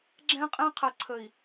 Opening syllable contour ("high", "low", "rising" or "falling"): high